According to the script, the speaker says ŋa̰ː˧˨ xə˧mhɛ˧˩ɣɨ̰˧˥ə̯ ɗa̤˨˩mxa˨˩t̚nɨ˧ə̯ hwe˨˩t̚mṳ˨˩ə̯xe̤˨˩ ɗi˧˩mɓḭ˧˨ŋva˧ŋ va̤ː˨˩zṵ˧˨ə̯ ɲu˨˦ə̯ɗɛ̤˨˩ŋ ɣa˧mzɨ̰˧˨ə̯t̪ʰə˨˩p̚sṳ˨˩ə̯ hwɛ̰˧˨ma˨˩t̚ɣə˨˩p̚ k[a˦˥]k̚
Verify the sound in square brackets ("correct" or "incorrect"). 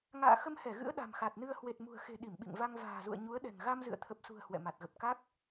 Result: correct